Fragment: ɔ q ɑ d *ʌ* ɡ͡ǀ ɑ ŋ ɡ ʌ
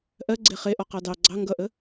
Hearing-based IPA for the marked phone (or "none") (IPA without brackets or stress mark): ɑ